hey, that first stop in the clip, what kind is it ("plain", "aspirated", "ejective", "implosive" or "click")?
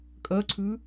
ejective